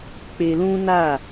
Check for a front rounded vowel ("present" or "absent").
absent